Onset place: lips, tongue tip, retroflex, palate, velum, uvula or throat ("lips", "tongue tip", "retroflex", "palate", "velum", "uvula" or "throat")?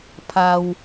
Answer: lips